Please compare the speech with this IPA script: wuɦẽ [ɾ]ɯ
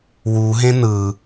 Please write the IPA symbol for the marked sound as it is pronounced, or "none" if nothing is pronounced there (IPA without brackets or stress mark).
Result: n